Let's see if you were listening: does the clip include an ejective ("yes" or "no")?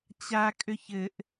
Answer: yes